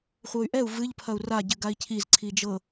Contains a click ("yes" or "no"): yes